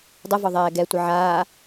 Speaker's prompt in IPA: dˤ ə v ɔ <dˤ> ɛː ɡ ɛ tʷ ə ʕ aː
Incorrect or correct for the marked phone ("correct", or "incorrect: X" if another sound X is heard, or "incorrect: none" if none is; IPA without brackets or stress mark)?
incorrect: ðˤ